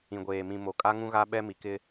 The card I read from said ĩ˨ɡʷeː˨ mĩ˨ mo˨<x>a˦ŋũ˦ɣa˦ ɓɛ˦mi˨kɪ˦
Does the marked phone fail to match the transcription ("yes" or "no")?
yes